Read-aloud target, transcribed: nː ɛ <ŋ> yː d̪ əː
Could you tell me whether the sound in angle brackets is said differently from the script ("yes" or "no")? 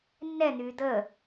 yes